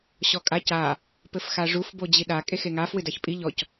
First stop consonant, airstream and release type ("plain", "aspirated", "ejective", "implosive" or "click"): ejective